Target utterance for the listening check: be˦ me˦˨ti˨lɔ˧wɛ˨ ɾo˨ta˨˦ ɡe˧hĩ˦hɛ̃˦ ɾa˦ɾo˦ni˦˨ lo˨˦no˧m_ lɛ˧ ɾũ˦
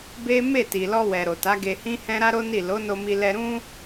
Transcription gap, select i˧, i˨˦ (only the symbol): i˧